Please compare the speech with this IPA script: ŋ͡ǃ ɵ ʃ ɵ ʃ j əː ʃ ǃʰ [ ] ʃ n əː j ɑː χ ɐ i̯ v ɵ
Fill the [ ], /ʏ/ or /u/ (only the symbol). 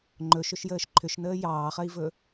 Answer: ʏ